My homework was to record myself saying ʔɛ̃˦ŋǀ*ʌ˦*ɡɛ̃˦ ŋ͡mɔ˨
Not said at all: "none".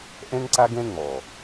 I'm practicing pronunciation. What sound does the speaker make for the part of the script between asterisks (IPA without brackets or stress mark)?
a˦